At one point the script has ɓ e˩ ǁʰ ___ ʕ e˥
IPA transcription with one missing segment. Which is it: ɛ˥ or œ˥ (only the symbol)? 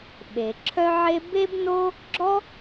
œ˥